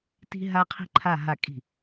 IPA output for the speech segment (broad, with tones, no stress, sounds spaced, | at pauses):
t i̤˥ ɦ a˥ qʰ i̤˥ ǃʰ a˥˧ ɦ a˥˩ kʼ i̤˥˩